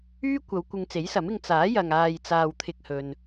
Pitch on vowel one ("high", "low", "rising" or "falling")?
high